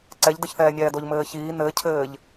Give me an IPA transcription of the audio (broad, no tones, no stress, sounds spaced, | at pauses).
ǀ ɛ ʎ d ɘ ç θ ɛː nʲ ɛː d o ʎ m ɘː ç iː n ɘ cʰ ɘː ʎ